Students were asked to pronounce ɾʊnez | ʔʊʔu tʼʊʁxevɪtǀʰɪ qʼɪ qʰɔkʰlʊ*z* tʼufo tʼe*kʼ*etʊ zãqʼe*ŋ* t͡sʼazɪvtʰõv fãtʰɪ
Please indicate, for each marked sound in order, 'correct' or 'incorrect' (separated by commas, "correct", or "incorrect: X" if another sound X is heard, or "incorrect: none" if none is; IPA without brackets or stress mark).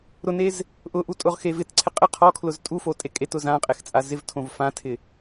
correct, correct, incorrect: x